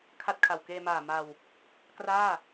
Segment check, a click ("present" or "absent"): absent